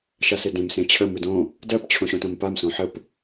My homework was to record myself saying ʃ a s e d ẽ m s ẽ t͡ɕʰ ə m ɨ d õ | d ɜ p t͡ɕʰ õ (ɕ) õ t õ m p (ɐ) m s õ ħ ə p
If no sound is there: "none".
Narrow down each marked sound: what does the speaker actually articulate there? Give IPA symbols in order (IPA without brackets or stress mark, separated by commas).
ɕ, a